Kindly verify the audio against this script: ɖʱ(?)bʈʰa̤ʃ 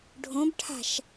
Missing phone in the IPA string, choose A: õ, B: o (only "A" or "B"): A